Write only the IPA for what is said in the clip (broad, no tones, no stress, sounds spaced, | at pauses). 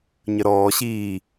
ɲ ə ɾ ɔː ɕ iː